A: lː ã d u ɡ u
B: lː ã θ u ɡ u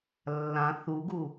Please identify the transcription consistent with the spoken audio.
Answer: B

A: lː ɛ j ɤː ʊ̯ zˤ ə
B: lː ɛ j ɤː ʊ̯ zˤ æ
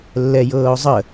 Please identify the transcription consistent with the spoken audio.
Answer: A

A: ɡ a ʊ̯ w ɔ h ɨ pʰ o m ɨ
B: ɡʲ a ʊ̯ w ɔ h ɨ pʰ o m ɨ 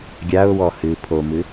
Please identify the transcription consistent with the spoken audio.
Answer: B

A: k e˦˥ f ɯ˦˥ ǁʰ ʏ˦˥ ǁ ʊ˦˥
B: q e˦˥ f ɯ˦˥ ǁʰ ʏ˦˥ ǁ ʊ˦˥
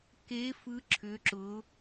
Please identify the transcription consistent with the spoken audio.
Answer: A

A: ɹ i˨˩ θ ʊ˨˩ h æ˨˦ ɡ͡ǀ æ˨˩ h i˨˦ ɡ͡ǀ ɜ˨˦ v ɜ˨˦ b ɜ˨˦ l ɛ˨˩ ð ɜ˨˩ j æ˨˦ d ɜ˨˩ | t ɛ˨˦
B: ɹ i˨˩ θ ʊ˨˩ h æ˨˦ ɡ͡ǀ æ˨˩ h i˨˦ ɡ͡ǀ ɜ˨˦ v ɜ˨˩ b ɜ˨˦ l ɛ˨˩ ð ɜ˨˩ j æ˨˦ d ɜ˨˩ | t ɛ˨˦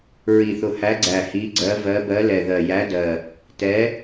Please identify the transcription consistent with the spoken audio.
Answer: A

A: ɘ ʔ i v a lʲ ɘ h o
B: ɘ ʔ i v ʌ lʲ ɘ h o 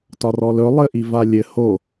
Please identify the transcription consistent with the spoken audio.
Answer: A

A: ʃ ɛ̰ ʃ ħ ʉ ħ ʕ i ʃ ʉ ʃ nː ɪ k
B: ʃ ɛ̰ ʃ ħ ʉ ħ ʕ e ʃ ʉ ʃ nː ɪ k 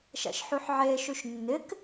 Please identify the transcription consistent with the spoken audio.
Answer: B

